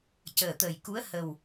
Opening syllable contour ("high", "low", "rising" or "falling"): low